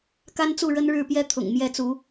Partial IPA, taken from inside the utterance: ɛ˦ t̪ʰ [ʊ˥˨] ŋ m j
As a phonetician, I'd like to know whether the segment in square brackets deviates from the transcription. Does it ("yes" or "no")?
yes